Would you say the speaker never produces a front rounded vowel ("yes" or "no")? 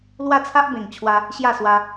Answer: yes